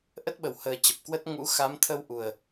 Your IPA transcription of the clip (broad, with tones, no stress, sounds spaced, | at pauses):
ʔ ə˦˥ t̚ ɓ ə˨˩ w h əː˨˩ t͡ɕ ə˨˩ p̚ k w ə˦˥ t̚ ŋ ṵ˧˥ x a˨˦ m t̪ʰ ə˧ w ʔ u˨˩ ə̯